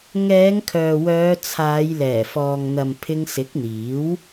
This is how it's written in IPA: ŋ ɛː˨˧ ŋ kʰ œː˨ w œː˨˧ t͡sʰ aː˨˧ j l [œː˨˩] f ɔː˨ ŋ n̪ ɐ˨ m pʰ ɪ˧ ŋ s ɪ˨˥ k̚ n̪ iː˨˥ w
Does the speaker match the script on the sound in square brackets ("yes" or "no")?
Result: no